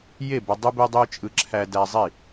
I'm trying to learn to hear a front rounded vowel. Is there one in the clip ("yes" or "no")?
yes